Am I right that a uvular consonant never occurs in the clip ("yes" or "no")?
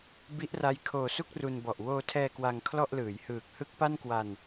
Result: yes